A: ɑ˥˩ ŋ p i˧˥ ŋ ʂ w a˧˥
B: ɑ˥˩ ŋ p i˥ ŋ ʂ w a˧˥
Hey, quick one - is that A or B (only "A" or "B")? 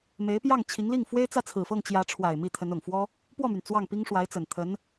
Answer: B